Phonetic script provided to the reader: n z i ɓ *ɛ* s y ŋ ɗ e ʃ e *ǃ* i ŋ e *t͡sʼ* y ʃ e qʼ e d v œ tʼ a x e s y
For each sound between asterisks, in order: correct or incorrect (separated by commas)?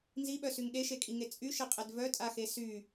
incorrect, incorrect, correct